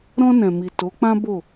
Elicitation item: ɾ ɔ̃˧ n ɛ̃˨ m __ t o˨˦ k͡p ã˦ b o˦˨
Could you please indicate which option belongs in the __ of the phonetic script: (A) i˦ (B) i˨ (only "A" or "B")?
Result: B